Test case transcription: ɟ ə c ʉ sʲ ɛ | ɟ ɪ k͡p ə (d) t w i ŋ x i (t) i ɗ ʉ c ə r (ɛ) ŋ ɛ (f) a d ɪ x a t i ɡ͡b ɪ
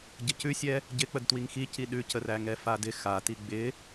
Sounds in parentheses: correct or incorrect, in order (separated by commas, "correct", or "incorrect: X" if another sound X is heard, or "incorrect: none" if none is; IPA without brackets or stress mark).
correct, incorrect: c, incorrect: æ, correct